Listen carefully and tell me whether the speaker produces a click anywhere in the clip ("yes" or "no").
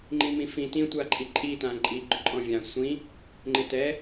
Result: yes